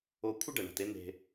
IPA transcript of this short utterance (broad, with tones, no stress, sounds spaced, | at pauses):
o˧ kʷʰ ɨ˦ ɖ ɐ˨ ɳ a̤˨ t e˧ n̪ e̤˨